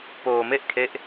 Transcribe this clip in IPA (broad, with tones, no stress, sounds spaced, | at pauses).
p oː˧ m e˥˩ ʔ kʰ e˦˥ ʔ